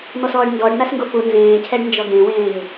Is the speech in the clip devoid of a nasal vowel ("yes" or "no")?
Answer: no